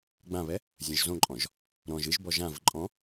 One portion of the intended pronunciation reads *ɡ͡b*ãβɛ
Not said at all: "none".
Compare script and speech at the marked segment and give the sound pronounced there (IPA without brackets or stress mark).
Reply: ɡ͡b